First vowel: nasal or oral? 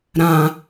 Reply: nasal